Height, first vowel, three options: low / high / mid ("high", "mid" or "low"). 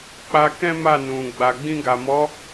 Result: low